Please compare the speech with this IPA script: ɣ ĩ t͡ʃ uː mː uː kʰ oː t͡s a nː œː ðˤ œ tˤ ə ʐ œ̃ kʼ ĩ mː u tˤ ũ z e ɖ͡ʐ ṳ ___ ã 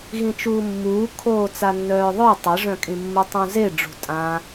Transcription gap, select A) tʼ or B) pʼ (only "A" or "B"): A